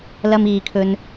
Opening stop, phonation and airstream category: aspirated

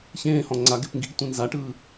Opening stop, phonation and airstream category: click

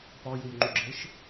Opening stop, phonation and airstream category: plain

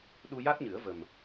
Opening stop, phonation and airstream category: implosive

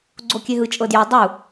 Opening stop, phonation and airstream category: click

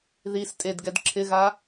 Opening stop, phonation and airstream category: ejective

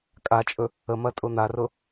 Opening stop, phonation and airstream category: ejective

